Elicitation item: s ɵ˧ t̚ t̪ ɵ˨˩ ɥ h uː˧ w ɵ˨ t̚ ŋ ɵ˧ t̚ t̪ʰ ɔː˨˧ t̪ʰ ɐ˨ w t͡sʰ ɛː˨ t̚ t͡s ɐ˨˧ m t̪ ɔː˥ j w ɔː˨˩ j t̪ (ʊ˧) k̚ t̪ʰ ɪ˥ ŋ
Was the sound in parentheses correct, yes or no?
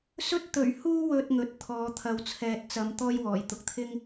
yes